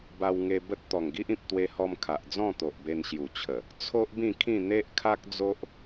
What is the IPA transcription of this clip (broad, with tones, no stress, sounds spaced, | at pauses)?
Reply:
b a˧ w ŋ e˧ b ə˦ t̚ t̪ ɔ˨˩ ŋ ɡ i˦ ʔ ĩ˨ p̚ t̪ w e˧ h ɔ˧ m kʰ a˨ ʔ d͡z ɔ̃˥˧ t̪ o˨ ʔ b e˧ n ɕ j u˨˩ t͡ɕʰ ə˨˩ | t͡sʰ o˦ ʔ b ĩ˥˧ kʰ ĩ˥˧ n̪ e˦ ʔ kʰ a˦ k̚ d͡z o˦ ʔ